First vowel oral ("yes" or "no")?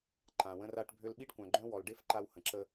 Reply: no